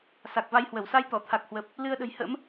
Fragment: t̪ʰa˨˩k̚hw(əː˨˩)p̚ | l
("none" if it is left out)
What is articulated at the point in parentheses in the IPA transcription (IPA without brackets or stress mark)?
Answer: əː˨˩